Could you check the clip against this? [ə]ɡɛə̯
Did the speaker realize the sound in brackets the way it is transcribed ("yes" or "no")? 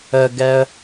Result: yes